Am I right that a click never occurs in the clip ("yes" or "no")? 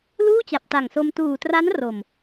yes